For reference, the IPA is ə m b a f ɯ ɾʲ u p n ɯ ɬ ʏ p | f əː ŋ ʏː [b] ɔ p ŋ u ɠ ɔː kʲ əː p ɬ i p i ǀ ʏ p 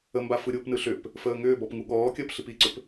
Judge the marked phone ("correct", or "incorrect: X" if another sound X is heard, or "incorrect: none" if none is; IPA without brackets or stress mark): correct